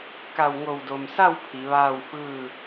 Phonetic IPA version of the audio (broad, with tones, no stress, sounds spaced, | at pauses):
k a˧˩ w ŋ o˧˩ w d o˩ m s a˥˨ w pʰ i˩˧ ʋ aː˥˨ w f ɯː˥˨